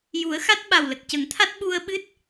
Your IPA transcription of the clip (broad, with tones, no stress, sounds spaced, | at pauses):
j u˨˩˦ ə̯ x a˦˥ t̚ ɓ a˨˩ w l ə˨˩ k̚ c ə˨˩˦ ŋ t̪ʰ a˦˥ t̚ ɓ u˧ ə̯ ɓ ɨ˦˥ t̚